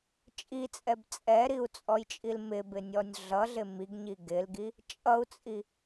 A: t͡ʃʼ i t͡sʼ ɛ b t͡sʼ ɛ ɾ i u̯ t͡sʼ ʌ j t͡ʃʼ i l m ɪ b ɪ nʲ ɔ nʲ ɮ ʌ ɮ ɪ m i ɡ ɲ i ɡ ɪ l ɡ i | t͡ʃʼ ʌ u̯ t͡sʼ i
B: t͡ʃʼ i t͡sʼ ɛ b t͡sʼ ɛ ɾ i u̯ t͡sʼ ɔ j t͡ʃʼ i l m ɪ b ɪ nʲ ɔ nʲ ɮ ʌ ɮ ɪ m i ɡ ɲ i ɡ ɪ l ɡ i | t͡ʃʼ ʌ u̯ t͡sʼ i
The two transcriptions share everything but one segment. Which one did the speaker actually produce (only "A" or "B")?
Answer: B